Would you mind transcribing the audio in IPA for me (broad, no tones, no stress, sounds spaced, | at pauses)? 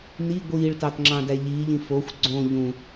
n i ɡʷ iː ɭ t ɑ t ŋ͡ǁ ɑ̃ d æ ʎ iː ʎ ĩ f o xʷ ɡ͡ǀ õ ʎ ũ